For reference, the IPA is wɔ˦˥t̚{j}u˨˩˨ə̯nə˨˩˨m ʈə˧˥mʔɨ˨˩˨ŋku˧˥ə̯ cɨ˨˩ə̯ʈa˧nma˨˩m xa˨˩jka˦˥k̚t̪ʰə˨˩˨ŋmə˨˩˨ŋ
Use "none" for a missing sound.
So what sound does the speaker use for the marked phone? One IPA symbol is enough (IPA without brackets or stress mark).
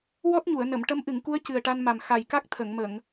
ɲ